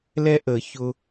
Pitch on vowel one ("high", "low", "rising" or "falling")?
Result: high